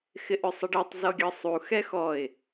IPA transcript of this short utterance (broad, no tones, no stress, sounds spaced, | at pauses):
x ɪ ʔ ʏ sˤ ɪ ɖ ɛ tˤ z ɔ ɡʲ ɤ sˤ u x ɛ x ɔ ɪ̯